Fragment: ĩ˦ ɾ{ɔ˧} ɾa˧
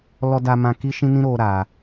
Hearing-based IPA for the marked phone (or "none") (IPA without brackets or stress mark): o˧